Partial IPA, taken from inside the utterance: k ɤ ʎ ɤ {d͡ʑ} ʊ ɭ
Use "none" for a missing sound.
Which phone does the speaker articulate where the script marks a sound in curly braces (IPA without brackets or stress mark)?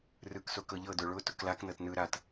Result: d